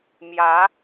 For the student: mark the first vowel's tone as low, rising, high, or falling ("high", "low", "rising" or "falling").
rising